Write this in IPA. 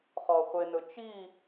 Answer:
χɔχʷenɵt͡ʃi

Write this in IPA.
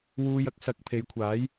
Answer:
wuː˧jɐ˥k̚ sɐ˨k̚ pʰe˨˧jkʷʰaː˨˥j

